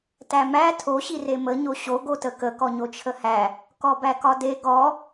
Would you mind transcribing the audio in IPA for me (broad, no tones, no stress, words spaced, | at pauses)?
tæmæ tʰo ɕiremə ɲoɕo ɡotəkə kɔɲot͡ʃʰəhæ | kɔbækɒde ɡɔ